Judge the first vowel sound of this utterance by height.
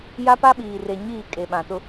low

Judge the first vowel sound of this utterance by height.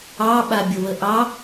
low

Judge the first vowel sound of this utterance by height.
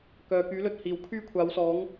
mid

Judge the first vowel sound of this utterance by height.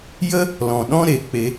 mid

